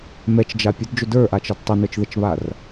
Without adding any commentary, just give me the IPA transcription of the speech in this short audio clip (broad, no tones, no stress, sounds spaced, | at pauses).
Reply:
m ɛ t͡ʃ d͡ʒ a pʲ ə d d͡ʒ ʊ d ə˞ ʔ a t͡ʃ ɐ d tˤ ʊ n ə˞ t͡ʃ ð ə t͡ʃ β a r